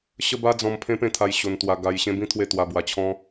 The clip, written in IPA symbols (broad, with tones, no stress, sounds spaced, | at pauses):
ɕ ə˦ b a˦ d͡z ɔ̃˧ m pʰ ẽ˦ p ẽ˥˧ t̪ʰ a˧ j ɕ o˧ n t̪ w a˧ ɡ a˧ j ɕ ẽ˦ b ĩ˦ t̪ʰ w e˥˧ t̪ w a˧ b w a˧ t͡ɕʰ ɔ̃˦